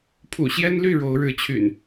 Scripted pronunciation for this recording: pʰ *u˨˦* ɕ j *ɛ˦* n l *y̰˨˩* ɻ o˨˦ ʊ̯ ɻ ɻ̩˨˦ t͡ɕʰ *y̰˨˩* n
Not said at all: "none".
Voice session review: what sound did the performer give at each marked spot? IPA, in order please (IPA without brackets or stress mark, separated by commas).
ṵ˨˩, ɛ˦, y˥˨, y̰˨˩